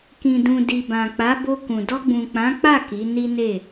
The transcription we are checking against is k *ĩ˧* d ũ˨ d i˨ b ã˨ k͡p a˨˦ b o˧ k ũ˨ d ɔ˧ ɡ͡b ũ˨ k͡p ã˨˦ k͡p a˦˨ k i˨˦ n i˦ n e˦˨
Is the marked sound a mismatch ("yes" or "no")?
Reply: yes